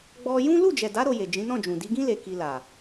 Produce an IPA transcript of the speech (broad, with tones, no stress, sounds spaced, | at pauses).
ɡ͡b ɔ˧ j ũ˦ l u˦˨ d͡ʒ ɛ˨ d a˨˦ ɾ o˧ j e˨ d͡ʒ ĩ˨˦ n ɔ̃˦˨ d͡ʒ ũ˨ d i˨˦ ɡ ĩ˦ l e˧ k i˧ l a˨